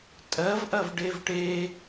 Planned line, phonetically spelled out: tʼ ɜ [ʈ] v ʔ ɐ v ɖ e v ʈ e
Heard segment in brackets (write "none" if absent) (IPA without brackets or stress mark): none